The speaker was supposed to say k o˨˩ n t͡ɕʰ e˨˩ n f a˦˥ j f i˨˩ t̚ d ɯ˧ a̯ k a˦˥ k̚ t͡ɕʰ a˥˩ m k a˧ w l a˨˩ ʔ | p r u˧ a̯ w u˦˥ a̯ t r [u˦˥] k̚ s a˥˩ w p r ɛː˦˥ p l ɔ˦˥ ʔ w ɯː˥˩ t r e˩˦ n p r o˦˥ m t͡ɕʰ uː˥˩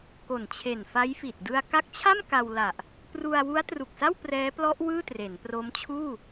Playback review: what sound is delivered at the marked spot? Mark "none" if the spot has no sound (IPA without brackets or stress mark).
u˨˩